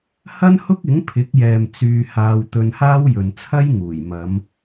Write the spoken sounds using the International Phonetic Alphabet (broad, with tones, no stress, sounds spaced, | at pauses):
h ɐ˥ n h ʊ˥ k̚ ɪ˨˥ ŋ pʰ ɪ˨˥ k̚ j ɛː˨ m t͡s yː˧ h aː˧ w t̪ ɵ˧ n h aː˥ w j ɵ˨ n t͡sʰ ɐ˥ j ŋ uː˨˩ j m ɐ˨˧ m